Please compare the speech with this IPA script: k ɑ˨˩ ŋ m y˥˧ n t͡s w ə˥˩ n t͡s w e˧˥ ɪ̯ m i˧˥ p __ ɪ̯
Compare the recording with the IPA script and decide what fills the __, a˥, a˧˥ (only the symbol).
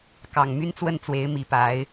a˧˥